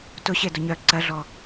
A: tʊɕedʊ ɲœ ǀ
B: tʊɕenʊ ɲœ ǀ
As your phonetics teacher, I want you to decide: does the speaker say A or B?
A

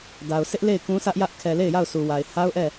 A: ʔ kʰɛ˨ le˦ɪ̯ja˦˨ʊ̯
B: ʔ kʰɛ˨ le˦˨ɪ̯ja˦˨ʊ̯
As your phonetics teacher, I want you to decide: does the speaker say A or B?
B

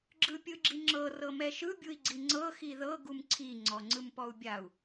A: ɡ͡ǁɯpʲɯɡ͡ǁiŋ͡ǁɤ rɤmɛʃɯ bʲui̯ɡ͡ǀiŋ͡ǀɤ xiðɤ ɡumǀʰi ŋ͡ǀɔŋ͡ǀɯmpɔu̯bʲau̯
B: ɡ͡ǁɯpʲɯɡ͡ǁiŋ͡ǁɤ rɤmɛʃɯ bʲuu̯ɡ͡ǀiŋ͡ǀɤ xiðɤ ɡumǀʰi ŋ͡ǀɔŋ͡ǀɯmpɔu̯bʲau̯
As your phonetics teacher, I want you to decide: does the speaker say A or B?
A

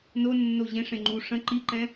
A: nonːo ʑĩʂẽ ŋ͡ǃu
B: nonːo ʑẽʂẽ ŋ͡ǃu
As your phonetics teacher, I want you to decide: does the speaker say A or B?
B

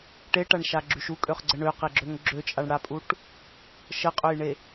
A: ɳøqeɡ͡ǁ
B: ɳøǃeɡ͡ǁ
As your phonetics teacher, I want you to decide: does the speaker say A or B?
A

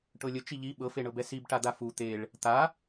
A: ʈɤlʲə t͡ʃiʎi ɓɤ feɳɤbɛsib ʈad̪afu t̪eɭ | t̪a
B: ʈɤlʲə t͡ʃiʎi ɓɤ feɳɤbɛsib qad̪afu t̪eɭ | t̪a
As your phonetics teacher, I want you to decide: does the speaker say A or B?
A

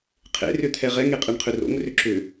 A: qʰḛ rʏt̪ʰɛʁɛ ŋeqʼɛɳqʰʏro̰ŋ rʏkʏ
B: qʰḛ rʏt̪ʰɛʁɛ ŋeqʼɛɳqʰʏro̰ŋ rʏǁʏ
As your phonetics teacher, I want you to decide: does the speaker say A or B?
B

